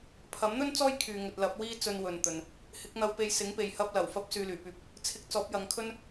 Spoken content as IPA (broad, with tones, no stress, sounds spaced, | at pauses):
pʰ ɐ˨˥ m n̪ ɵ˥ n t͡s ɔː˥ j kʰ yː˨ ŋ ɵ˨ t̚ l ɐ˨˥ p̚ w iː˥ t͡s ɵ˧ n w ɵ˨ n t̪ ɵ˨ n | h ɪ˨˥ k̚ n̪ ɐ˧ w p e˧ j s ɪ˨˥ ŋ p e˨ j h ɐ˥ p̚ l ɐ˨˩ w f ɐ˥ p̚ s yː˨ l yː˨˩ p yː˨˥ p̚ | t͡sʰ ɪ˧ k̚ t͡s ɔː˨˥ p̚ j ɐ˨˧ ŋ kʰ ɵ˥ n